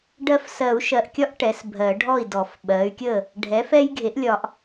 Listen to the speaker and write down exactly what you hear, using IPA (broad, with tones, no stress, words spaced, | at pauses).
ɖɜ˦f sɜ˨˩˦u̯ʃɜ˨ʔkʲɒ˦ʔ ʈɛ˩˥sbʱɜ˨˩˦ɖʱɔ˥˩i̯dɔ˨˩˦f ɓɜ˩˥y̯kʲə˥˩ | ɖʱɛ˩˥fɛ˦j ɡʱe˩˥ʔlʲɒ˨ʔ